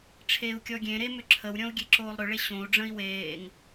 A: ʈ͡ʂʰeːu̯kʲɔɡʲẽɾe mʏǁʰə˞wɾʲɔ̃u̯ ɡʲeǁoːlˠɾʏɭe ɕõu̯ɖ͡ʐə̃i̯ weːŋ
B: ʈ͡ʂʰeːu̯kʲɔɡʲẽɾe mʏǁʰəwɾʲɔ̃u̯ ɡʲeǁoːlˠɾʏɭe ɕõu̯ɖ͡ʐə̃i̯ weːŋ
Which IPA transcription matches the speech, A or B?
B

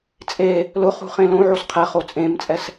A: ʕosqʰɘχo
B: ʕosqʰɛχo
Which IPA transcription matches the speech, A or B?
B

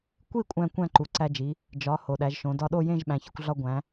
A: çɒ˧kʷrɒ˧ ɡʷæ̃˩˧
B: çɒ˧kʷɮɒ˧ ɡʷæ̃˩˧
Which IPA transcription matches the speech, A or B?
B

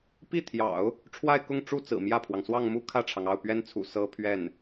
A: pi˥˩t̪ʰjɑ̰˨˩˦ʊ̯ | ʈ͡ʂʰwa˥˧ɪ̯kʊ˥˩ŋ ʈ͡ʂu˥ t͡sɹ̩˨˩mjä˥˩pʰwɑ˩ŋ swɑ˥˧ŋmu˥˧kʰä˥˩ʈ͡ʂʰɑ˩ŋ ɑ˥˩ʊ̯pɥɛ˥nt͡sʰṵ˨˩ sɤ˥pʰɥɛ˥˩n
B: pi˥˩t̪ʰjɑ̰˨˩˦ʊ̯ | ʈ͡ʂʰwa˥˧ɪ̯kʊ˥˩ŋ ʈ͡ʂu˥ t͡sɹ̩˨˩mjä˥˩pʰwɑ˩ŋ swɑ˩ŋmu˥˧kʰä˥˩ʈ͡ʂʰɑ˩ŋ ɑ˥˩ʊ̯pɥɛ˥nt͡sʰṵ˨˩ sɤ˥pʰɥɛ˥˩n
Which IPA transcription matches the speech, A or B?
A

